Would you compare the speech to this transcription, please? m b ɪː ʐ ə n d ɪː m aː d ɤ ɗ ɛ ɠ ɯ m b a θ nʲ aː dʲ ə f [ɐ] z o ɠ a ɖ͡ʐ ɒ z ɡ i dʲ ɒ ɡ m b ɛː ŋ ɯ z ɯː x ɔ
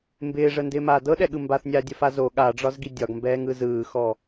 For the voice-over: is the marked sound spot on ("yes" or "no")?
no